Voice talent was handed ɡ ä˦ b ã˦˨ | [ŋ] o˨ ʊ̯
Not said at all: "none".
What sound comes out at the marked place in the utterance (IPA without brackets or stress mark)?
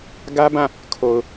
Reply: kʰ